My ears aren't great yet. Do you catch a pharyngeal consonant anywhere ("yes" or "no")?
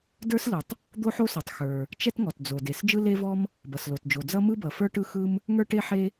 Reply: yes